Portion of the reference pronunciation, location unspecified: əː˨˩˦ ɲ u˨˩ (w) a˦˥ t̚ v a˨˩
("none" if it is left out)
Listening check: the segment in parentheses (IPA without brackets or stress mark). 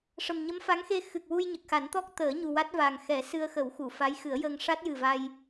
w